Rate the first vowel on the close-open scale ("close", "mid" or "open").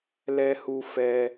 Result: mid